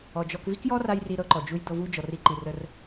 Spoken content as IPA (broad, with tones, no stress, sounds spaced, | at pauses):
ɔ˩ d͡ʒ ɔ˧ k v i˥ k j ɔ˥ r a˧ j r i˥ ɾ ɤ˥ ǃ ɔ˩ d͡ʒ u˥ j d̪ ɤ˧ v u˥ d͡ʒ ɔ˩ r i˧ ǃ i˩ r ə˧ r